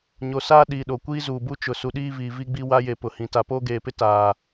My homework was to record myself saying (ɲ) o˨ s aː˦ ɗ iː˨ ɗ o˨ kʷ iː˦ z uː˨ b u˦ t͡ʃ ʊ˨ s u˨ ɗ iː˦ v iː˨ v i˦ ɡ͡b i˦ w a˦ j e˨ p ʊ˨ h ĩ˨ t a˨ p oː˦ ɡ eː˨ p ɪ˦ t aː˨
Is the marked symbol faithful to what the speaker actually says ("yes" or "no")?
yes